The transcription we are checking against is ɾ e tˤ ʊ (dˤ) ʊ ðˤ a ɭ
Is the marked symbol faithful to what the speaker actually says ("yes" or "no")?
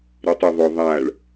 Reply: no